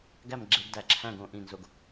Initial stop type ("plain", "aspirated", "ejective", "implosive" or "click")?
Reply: plain